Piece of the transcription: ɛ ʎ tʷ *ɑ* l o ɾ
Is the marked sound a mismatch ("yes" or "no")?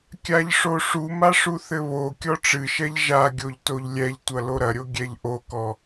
yes